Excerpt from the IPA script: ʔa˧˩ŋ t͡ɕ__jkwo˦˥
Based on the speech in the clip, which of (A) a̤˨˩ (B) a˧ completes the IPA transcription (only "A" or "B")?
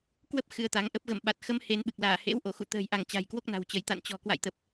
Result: A